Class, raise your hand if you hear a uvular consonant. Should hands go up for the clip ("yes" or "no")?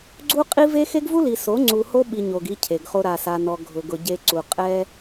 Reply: yes